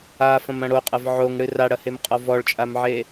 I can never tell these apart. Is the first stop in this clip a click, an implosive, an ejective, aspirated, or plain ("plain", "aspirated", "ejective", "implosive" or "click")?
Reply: ejective